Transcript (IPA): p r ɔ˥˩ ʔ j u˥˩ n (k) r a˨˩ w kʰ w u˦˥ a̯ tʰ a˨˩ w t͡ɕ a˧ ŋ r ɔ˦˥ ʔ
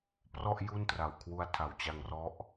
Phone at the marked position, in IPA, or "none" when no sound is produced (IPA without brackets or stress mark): t